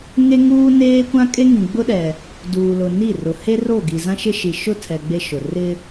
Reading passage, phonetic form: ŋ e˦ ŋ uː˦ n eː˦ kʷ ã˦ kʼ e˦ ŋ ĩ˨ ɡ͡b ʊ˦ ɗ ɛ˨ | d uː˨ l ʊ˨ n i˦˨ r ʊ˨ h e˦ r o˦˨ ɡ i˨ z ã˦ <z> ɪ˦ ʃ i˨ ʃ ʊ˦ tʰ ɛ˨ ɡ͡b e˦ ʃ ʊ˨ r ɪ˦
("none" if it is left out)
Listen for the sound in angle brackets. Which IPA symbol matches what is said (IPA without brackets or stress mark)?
ʃ